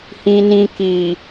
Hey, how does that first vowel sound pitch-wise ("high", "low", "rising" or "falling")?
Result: low